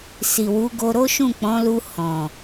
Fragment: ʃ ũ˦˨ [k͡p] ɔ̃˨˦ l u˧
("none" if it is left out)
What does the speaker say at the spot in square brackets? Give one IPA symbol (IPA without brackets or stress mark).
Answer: k͡p